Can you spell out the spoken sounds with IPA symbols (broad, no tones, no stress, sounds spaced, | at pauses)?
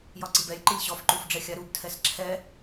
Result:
j ɒ ǀ i b ɛ lʲ ǃ i lʲ ɕ ɔ f ǃ u f ɖ͡ʐ ɛ xʲ a ɾ u b tʰ ɛ s ǁʰ ɛ